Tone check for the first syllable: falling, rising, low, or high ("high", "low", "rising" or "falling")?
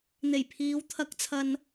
low